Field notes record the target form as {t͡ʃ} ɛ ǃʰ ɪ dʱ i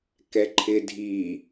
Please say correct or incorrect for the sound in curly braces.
incorrect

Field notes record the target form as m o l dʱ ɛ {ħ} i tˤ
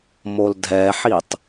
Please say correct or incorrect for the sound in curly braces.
correct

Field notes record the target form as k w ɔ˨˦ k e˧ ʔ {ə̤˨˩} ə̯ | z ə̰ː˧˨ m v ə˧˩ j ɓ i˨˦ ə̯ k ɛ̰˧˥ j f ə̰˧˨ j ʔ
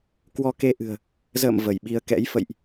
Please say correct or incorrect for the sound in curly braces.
incorrect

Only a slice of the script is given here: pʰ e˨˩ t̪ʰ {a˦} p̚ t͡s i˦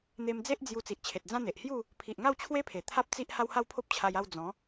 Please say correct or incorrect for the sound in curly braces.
correct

